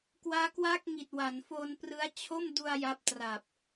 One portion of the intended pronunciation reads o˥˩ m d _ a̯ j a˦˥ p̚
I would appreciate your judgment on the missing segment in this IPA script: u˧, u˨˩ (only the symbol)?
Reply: u˧